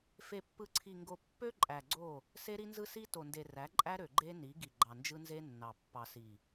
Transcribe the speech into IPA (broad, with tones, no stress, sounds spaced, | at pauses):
f e˨ pː ɯ˨ ǀʰ i˨ ŋ ɡ o˨ pː ø˦ ǃʼ æ˨ ɡ͡ǀ o˦˨ | s e˦ ɾ i˦ n z ɯ˦ s i˦ t o˨ n d e˨ r æ˨˦ ǃʼ æ˦ ɾ ø˨ ɡ͡ǃ e˦ n i˨˦ ɡ i˨ ɡ͡ǃ ɑ˨ n d͡ʒ ɯ˦ n z e˦ nː ɑ˨ pː ɑ˨ s i˨